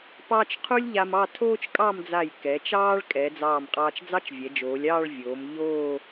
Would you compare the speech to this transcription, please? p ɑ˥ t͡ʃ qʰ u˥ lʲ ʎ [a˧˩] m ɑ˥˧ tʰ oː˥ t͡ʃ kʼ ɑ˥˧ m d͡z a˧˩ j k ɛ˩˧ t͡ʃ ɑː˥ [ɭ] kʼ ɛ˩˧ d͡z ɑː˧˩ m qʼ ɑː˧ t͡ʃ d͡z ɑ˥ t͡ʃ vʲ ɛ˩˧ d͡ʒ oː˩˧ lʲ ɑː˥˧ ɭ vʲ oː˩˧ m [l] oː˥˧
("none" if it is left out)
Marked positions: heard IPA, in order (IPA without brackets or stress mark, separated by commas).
a˧, ɭ, ʎ